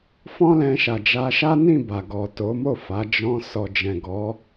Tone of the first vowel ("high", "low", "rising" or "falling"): high